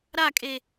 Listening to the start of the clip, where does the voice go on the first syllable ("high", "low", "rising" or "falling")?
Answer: falling